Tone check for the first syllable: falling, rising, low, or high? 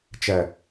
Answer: low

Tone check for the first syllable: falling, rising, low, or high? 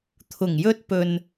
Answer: low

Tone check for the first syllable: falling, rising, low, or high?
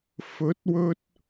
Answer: rising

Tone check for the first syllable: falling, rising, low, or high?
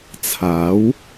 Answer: rising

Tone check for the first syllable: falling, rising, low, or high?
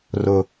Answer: low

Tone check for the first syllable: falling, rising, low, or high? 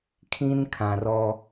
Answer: high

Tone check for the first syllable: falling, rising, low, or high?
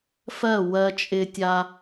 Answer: falling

